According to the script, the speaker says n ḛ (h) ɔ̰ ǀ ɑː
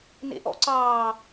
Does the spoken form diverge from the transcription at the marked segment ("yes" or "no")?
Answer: yes